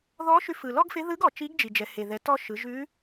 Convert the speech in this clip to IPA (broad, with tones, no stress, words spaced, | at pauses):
ðɔ˧˥ʃʉ˧fɯ˩ lɔ˥ɡfɪ˧˥ ðɯ˧˥ɡɔ˩ t͡ʃi˧˥ɡd͡ʒi˩d͡ʒɛ˩ he˩ðɛ˩˧ tɔ˧ ʃɯ˩˧ ʒʉ˧˥